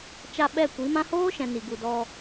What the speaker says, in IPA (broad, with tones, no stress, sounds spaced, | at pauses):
t͡ʃ a˧ ɓ ɛ˦˨ kʷ i˨˦ m ã˦ h oː˦ ʃ ɛ̃˨ n i˨ ɡ u˨ d ɔ˧